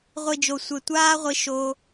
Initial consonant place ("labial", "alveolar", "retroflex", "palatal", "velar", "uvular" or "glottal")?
uvular